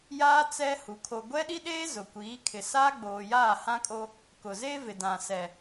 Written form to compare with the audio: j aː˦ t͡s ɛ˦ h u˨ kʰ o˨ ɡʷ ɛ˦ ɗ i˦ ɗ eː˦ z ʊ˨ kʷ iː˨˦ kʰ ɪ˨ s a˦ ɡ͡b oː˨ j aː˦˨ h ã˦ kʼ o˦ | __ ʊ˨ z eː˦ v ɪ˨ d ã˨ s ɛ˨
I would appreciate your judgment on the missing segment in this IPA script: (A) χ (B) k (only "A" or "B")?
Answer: B